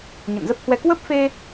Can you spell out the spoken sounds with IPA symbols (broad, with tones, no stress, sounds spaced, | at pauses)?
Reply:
ɲ ə̰˧˨ n z ə˦˥ p̚ h w ɛ˧ k w ə˦˥ p̚ f e˧